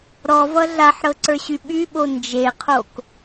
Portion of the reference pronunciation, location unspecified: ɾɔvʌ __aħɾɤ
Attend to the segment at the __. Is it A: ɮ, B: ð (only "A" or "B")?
A